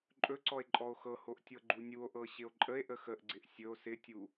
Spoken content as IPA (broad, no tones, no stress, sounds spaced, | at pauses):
ǃʼ ɵ ǀ ɔ e̯ ǃʼ ɔ o̯ x ɤ h o ʔ tʲ ɤ ɡ͡ǃ u nʲ u o̯ ʔ ɤ ɕ ɪ o̯ ǃʼ ə e̯ ʔ ə x ə ʔ ɡ͡ǀ ɪ ʔ sʲ ɵ o̯ s ɪ tʲ u